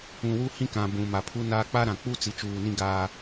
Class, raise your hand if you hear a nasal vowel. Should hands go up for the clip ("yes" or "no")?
yes